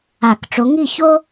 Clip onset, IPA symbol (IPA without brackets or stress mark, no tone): a